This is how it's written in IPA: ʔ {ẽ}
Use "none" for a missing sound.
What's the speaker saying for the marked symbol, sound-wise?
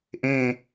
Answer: ẽ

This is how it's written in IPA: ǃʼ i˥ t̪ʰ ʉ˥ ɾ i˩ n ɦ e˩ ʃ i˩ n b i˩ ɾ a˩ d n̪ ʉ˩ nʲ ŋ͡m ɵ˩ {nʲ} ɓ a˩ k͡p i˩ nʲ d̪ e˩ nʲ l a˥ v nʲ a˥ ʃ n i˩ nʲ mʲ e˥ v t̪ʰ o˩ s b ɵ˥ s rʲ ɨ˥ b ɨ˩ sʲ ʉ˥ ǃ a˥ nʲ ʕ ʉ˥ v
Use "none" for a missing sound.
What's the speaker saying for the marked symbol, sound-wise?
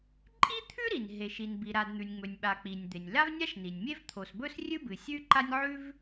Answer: nʲ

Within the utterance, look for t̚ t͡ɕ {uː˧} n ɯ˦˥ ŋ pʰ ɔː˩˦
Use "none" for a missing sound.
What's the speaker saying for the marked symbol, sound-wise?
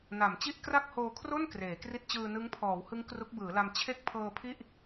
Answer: ɯː˧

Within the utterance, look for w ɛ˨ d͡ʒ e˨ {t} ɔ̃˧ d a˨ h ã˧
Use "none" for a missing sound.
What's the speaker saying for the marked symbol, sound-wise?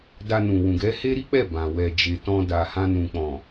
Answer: t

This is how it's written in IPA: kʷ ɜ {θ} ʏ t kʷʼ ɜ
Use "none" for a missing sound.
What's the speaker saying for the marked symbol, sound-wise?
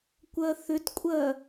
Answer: θ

